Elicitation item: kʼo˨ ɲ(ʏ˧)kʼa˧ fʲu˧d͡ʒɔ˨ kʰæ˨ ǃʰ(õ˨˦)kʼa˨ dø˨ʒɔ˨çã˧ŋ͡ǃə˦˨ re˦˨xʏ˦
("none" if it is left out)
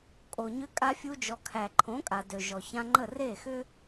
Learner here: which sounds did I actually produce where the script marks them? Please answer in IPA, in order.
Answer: ʏ˧, õ˨˦

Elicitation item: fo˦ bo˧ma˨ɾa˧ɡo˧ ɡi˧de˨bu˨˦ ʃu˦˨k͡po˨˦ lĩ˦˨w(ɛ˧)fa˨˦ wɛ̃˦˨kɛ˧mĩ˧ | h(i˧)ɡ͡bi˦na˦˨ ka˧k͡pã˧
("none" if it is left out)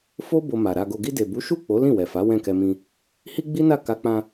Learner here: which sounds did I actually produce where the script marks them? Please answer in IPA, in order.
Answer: ɛ˨, i˦

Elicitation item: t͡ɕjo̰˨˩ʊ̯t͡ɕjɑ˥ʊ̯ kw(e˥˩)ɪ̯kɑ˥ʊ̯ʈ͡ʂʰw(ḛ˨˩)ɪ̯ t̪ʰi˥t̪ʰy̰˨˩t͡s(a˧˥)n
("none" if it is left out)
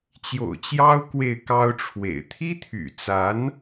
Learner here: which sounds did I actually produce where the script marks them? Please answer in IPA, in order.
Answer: e˥˩, ḛ˨˩, a˧˥

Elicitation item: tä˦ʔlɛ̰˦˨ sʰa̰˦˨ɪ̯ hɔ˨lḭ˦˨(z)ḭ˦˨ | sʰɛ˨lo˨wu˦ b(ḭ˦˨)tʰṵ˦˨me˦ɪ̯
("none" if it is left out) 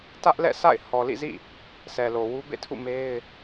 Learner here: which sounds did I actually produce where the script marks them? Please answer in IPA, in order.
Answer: z, ḛ˦˨

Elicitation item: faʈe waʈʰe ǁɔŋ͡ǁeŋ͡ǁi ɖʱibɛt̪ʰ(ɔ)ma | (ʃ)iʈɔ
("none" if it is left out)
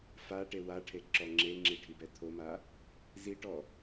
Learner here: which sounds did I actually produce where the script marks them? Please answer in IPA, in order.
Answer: o, z

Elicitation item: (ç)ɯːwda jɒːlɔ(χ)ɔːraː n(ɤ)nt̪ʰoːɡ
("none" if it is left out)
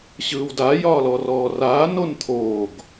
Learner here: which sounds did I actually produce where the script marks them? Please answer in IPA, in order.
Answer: ɕ, r, o

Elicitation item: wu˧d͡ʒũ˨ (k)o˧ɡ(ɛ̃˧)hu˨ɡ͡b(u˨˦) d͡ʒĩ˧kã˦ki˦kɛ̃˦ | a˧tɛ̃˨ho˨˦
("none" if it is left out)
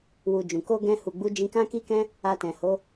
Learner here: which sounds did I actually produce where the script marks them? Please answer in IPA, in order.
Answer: k, ɛ̃˧, u˨˦

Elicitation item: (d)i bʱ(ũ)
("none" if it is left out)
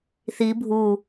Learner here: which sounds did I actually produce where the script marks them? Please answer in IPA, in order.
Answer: θ, u

